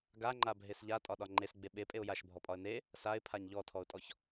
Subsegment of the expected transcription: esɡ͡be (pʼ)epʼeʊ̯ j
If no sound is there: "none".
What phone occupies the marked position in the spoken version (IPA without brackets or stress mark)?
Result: ɓ